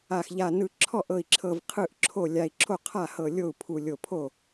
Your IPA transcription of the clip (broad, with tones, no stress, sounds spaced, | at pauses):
a˧˩ x ʎ a˧˩ n ɯ˧˩ ǁʰ ɔ˥˩ ʔ ɤ˧˩ i̯ ǁʰ ɤ˧˩ v qʰ ɯ˥˩ ʔ ǁʰ o˥˩ lʲ a˧˩ i̯ ǁʰ o˥˩ qʰ a˥˩ h ɤ˧˩ lʲ o˥˩ u̯ pʰ u˧˩ lʲ o˧˩ pʰ o˥˩